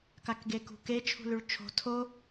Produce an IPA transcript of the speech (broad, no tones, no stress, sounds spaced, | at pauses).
k a k ɡ e k ṳ k e t͡ʃʰ ṳ l ʉ ɭ t͡ʃʰ o̤ tʰ o